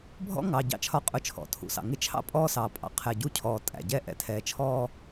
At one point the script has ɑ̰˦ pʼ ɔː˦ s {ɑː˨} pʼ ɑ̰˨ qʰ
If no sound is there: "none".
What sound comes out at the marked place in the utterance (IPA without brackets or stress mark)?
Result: ɑː˨